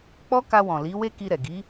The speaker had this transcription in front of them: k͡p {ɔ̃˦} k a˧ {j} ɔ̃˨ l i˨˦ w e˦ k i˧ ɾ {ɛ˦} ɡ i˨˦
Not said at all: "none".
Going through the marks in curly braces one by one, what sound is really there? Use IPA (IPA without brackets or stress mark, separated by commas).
ɔ˦, w, ɛ˨